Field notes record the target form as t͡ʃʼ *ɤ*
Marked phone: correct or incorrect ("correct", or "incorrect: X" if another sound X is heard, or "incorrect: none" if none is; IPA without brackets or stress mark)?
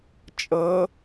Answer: correct